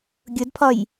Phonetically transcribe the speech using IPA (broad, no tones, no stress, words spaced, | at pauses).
ɡʲʊdpʰɒj